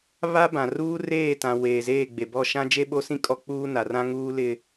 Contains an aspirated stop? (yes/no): no